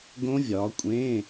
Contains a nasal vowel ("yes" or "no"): yes